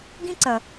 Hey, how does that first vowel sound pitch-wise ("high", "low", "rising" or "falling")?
high